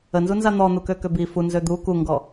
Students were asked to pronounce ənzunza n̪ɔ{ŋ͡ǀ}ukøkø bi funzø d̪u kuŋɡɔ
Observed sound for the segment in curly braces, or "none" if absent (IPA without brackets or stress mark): n̪